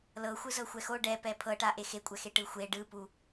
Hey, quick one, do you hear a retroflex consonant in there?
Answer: yes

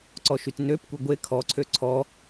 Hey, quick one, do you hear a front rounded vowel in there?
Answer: yes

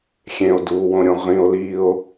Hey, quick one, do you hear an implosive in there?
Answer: no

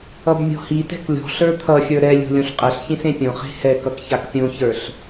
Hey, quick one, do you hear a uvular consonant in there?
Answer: yes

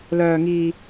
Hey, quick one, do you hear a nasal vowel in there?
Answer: no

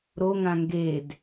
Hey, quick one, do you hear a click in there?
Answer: no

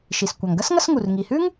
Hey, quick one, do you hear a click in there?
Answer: no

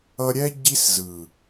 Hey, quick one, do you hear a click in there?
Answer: no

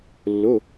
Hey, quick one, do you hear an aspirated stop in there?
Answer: no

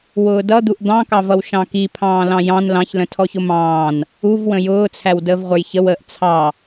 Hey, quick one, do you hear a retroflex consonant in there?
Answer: no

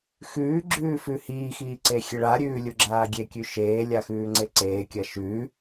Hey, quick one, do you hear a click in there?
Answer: yes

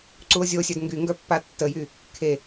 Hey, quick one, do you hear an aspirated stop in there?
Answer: yes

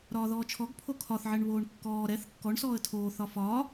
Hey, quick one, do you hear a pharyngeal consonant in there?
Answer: yes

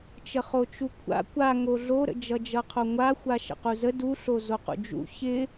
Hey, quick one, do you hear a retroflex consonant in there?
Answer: no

